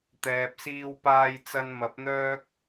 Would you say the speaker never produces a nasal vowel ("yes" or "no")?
yes